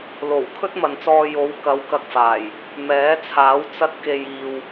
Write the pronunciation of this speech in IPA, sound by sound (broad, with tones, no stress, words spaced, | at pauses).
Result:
lo˨˩w kʰɵ˥t̚mɐ˨nt͡sɔː˧ jo˨˧wkɐ˨˧w kɐ˧k̚faː˨˩j | mɛː˨˥t͡sʰaː˨˥w t͡sɐ˧t̚ke˨j iː˨w